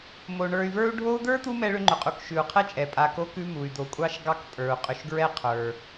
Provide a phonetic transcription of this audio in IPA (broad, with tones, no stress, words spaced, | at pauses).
mo˩ɳə˞˨y̯və˞˦u̯ ɖʱo˦u̯d̪ə˞˥t̪u˦ mɛ˥ɭʏ˥ŋ͡ǃʏ˩qʼu˨k ʃʉ˩u̯qʰɛ˥t͡ʃʼɛ˩ pʼa˨ko˦kʉ˦ mu˩y̯d̪o˨kʷʼɑ˥ʃ ɡɑ˦kpʼə˞˩u̯qʼʏ˨ʃɡɹɛ˥ qʰə˞˩